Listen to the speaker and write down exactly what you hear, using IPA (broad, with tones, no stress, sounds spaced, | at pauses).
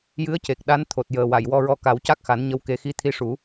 j ɨ˧˥ ə̯ c e˨˩ k̚ ɗ a˧˥ n t̪ʰ o˨˩ t̚ j əː˨˩ w a˨˩˨ j w ɔ˧ ɹ ɔ˧ k a˨˩˦ w c a˦˥ k̚ x a˨˩˦ n ɲ ə˧ w k e˧ x i˧ t̪ʰ i˧ ʂ u˨˩˦